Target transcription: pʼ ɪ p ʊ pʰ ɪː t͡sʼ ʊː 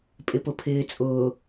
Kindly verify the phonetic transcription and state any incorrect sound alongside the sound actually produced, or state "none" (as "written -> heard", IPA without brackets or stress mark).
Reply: none